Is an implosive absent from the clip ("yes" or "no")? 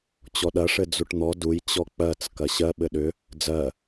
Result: no